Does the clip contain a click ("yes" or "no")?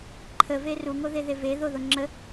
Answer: yes